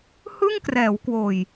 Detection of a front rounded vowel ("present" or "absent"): absent